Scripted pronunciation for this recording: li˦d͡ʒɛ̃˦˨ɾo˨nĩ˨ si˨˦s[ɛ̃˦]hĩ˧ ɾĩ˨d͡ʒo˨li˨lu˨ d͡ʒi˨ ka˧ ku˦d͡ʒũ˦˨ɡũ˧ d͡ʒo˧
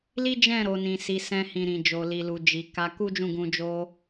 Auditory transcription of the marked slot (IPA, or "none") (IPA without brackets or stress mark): ɛ̃˦